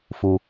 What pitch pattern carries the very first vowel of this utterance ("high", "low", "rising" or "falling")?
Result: low